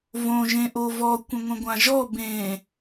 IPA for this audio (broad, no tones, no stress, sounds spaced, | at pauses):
v õ ʒ ẽ ʔ o v ɔ kʷ ə̃ ŋʷ ə̃ ɡʷ ã ʒ ɔ b ẽ